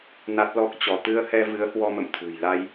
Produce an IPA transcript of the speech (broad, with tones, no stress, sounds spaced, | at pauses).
n a˦˥ t̚ l ɔ˦˥ k̚ t͡ɕ ɔ˧ t̪ ɨ˧ ə̯ h ɛ˧ v ɨ˨˦ ə̯ h w ɔ˧ m ə̰˧˨ m t̪ʰ ṳ˨˩ j l a˧ j